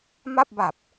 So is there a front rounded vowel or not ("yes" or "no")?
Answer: no